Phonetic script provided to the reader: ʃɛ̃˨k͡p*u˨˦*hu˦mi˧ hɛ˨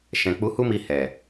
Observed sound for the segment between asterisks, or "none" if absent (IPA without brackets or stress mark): u˨˦